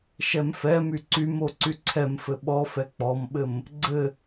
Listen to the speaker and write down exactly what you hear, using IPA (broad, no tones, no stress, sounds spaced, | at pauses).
ʃ ɛ m f ɛ m y ǀ y m o ǀ y ǀʰ ɛ m f ɘ ɓ ɔ f ɛ k͡p ɔ m ɓ ɘ m | ɡ͡ǀ ɘ